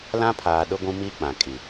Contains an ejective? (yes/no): yes